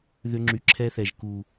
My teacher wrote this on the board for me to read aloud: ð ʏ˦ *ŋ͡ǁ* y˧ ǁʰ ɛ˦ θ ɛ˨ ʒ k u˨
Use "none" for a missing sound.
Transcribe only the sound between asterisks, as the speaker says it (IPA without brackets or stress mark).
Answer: ŋ͡ǁ